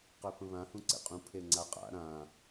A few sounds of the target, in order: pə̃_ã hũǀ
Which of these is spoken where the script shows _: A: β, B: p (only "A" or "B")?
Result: A